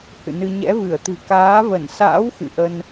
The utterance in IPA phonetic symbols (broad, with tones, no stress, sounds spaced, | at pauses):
h ɨ̰˧˨ n ɨ˧ ɲ ɛ̰˧˥ v ɨ˧˩ ə̯ t̪ ɨ̤˨˩ k aː˨˦ v ə˧˩ n s a̰ː˧˥ w x ɨ̰˧˨ ʔ ə˧ n